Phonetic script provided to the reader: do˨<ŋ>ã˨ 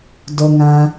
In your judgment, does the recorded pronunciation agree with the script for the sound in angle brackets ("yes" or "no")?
yes